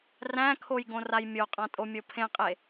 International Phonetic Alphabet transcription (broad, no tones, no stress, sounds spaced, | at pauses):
r æ̃ kʰ o j ɡ õ r a j mʲ o qʼ ã tʼ o mʲ o pʰ ẽ qʼ e